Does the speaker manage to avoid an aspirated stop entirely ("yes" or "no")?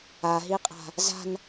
yes